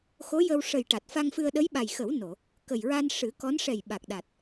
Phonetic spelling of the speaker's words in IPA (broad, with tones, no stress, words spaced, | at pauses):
xo˧˥jə˧w ʂə˨˩j ʈa˨˩t̚fa˧ŋfɨ˧ə̯ ɗə˧˥jɓa˨˩jxə˨˩˦w no˨˩˨ | kə˨˩jɹa˧n ʂɨ˨˩˦kɔ˧˥n ʂɛ˨˩j ɓa˨˩k̚ɗa˨˩t̚